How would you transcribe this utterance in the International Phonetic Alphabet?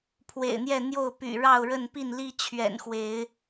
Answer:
pʰ w ḛ˨˩ ɪ̯ n̪ j ɛ˥˨ n̪ j o˥˨ ʊ̯ p y̰˨˩ ɻ ɑ˥˨ ʊ̯ ɻ ə˥˨ n p i˥˨ n l i˦ t͡ɕʰ ɥ ɛ̰˨˩ n x w e˨˦ ɪ̯

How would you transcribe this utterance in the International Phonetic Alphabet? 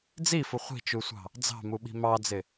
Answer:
d͡z i f ʊ χʷ i̤ t͡ʃ u sʷ ɑ̤ | d͡z ɑ̤ m u ɓ i̤ m ɑ d͡z ɪ

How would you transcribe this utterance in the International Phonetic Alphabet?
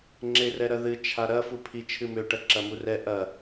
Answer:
ŋ͡ǁ e r ɛ ɾ ɐ ð ɨ t͡ʃʰ a ɾ ɐ f u pʰ i t͡ʃʰ ɨ m ø ʈ ɐ ǁ ɐ m u r ɛ ʔ ɐ

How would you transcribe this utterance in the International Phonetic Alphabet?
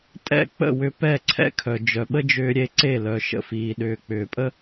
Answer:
tʼ ɛ̰˥˩ k͡p ə̰˥˩ w ʏ˧ p ɛ˥˩ ǀʰ ɛ̰˥ kʰ œ˩ d͡ʒ œ˩ ɓ ə˥ d͡ʒ ʏː˧ ɾʲ e˧ ǀ e˥˩ l œ˩ ʃ ə̰˧ f iː˩ ɗ ʏː˩ k͡p ʏː˩ pʼ ə˥

